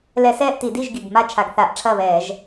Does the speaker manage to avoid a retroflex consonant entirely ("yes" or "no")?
no